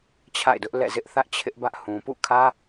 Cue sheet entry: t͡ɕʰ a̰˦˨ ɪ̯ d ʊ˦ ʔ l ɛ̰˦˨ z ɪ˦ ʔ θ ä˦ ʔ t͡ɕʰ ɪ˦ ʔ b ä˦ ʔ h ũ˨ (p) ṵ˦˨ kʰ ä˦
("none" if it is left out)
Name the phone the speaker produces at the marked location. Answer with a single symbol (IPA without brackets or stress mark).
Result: p